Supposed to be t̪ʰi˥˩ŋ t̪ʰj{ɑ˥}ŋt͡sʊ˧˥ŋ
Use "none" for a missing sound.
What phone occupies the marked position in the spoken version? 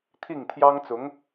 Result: ɑ˥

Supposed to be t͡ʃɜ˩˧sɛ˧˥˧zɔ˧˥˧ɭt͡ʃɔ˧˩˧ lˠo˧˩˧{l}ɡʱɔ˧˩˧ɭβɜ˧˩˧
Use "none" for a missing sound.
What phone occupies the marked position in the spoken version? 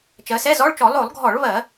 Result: lˠ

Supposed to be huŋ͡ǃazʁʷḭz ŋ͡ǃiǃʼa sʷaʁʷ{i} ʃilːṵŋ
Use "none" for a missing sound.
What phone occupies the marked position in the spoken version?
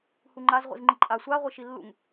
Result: i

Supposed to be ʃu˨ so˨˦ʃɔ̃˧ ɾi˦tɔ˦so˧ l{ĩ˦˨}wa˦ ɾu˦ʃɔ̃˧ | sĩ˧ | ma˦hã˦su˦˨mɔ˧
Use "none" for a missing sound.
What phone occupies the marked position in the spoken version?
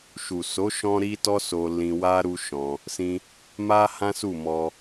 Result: ĩ˧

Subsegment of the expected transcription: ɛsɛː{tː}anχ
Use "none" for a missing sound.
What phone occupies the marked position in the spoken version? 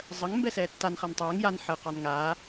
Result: tː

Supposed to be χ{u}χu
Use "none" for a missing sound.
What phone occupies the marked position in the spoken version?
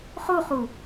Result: u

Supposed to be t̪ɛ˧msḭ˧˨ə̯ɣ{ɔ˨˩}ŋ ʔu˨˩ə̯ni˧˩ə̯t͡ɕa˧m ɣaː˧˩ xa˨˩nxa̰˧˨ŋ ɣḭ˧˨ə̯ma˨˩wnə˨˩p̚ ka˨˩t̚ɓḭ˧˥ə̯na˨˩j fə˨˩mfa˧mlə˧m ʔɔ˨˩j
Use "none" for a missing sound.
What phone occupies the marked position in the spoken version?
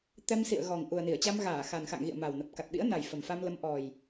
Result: ɔ˨˩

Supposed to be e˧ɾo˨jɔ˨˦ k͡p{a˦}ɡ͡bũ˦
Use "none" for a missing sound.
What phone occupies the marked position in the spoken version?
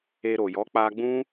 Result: a˧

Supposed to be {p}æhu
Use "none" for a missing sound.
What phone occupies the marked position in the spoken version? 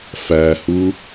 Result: f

